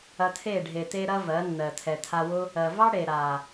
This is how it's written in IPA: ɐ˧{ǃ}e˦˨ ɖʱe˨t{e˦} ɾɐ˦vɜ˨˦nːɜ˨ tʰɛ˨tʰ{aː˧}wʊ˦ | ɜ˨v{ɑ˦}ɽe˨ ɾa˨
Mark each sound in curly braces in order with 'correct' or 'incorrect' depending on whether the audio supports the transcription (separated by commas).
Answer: incorrect, incorrect, incorrect, correct